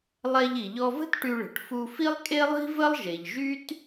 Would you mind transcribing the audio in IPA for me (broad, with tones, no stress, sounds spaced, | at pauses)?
lˠ ɛ˧ ʎ i˩ ʎ ɔ˧ v ə̤˥ t ʈ y˧ ɭ ə̤˩ ʈ f u˧ f i˥ lˠ kʼ e˥ lˠ i̤˥ v ə˥ lˠ ʒ e˩ ʎ ʒ y˥ t